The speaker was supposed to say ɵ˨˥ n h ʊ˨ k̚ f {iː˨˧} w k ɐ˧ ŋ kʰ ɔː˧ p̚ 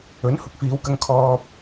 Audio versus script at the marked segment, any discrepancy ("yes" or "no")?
no